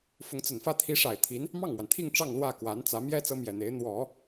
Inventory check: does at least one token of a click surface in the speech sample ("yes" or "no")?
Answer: no